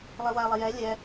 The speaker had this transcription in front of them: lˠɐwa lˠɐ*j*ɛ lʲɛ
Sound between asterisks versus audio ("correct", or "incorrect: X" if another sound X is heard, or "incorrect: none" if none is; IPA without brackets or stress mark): correct